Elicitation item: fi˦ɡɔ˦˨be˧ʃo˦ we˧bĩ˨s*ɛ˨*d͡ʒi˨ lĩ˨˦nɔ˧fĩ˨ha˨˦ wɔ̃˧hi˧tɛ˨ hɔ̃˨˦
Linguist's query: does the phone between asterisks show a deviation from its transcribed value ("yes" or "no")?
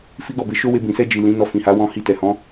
yes